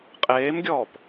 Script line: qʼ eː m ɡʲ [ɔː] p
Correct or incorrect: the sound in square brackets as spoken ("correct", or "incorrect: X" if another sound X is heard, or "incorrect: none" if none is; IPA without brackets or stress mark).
correct